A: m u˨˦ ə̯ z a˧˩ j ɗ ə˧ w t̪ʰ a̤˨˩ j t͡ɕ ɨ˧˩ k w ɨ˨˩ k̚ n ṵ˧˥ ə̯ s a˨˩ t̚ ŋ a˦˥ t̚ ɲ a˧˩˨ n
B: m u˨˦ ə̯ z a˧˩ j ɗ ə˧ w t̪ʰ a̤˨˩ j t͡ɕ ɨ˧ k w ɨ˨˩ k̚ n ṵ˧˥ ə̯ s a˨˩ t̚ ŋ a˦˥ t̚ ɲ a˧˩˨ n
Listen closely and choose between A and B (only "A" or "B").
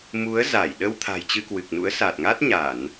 B